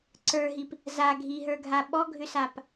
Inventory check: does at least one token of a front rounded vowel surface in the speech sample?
yes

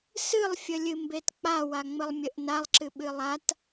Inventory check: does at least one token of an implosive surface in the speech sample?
yes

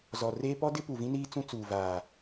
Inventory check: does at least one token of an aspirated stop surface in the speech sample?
no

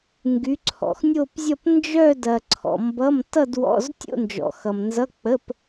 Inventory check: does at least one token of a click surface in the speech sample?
yes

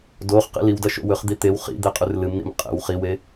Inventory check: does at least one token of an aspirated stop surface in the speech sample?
no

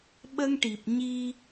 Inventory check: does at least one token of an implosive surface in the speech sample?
yes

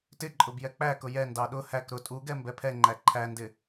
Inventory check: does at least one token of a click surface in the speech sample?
yes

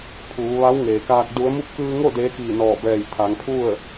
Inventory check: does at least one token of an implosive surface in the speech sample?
no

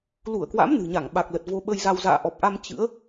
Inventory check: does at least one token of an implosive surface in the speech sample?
yes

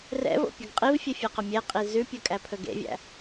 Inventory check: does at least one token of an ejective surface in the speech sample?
yes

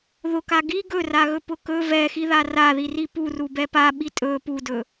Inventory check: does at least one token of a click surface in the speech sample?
no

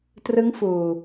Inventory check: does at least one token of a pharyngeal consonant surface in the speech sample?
no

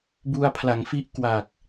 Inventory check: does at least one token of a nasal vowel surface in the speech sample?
no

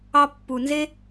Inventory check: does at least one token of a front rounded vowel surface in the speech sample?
no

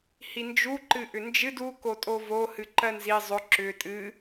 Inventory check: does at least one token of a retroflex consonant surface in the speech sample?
no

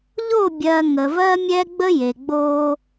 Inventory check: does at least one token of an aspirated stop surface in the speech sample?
no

